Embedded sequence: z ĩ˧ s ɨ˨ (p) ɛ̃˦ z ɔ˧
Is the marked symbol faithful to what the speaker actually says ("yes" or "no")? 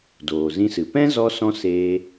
yes